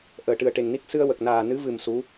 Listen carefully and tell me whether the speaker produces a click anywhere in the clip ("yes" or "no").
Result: no